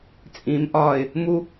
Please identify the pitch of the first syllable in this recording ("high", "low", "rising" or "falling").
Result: low